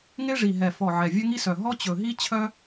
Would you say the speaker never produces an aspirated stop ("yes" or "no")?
no